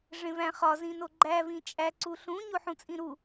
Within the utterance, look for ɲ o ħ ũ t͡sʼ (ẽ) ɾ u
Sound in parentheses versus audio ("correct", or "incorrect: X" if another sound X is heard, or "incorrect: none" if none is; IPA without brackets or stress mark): incorrect: ĩ